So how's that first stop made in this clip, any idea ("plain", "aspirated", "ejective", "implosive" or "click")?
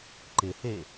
click